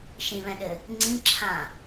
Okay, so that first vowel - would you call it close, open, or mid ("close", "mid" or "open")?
close